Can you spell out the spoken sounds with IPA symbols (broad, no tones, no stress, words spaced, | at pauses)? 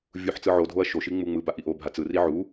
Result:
vʲuħ t͡sɯʕodʱoɐ̯ ʃoʃi ŋ͡muŋ͡mɯba ʔiʔobʱa t͡sɯri ʕu